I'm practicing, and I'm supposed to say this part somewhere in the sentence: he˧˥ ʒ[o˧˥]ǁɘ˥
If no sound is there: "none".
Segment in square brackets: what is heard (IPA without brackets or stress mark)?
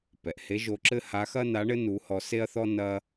o˧˥